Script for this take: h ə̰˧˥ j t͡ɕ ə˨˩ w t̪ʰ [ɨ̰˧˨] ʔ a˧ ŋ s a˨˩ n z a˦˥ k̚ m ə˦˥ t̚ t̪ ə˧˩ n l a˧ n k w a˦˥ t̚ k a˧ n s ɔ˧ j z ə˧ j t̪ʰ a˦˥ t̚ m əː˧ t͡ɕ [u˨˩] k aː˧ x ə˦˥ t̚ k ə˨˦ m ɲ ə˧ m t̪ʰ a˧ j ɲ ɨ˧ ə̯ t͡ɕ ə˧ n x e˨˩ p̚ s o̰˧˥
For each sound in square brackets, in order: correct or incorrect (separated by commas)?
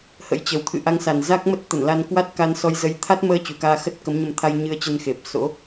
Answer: correct, correct